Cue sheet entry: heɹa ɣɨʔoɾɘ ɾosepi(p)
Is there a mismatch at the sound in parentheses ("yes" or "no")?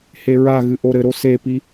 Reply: yes